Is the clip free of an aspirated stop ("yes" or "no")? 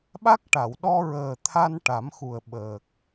no